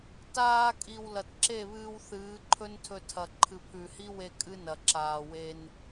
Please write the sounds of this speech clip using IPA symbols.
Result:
t aː˧ kʼ i˨ w l ɐ˨ t ǁ e˦˨ β ɨː˧ w θ ɨː˨˦ ǃʰ ɵ˦ n tʰ ɵ˧ tʰ ɐ˨ ǃʰ ɨ˨ pʰ ʉ˨ h i˦ w e˧ kʼ ɨ˦ n ɐ˨ ǁ aː˨ w e˧ n

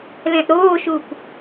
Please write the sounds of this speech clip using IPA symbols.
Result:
l ɛ̃ ʔ ɾ oː ʃ u p

